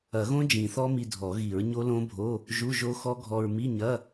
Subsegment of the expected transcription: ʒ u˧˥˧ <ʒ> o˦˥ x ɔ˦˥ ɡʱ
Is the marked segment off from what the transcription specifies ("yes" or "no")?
no